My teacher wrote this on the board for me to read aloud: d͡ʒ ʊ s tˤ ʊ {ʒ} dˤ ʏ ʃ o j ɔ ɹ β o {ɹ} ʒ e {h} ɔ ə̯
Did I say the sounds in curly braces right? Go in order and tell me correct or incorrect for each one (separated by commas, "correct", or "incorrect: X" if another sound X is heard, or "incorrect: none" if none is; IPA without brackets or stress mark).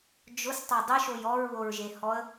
incorrect: none, correct, correct